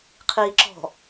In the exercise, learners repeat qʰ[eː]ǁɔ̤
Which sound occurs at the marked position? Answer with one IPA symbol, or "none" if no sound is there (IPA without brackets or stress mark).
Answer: iː